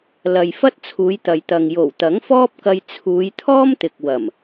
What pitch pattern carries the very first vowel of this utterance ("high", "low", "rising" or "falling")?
low